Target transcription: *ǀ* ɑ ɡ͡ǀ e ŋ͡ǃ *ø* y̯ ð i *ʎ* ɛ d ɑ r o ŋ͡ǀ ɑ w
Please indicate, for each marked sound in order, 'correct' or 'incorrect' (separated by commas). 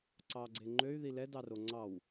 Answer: correct, correct, incorrect